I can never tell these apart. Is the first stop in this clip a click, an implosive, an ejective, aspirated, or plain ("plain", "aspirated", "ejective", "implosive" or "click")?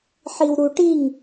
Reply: plain